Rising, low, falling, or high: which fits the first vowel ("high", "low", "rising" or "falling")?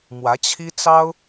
rising